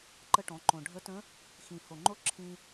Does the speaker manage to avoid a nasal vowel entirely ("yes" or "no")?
no